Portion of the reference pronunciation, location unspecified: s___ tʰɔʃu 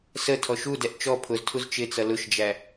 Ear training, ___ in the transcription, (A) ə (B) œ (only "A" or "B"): A